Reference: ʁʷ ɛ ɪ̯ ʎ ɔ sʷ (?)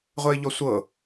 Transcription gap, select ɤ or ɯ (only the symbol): ɤ